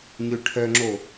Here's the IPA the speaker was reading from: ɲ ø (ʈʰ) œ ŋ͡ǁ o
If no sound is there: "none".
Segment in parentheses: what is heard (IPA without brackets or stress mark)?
ʈʰ